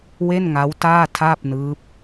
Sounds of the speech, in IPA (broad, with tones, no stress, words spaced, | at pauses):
we˥˩nŋa˦˥w taː˥˩tʰaː˥˩p̚nɯː˦˥p̚